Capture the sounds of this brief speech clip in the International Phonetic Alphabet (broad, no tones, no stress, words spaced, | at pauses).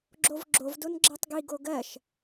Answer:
ɡ͡ǁovɡ͡ǁov donɡ͡ǁɜtˤɡi ɡoɡɜʃ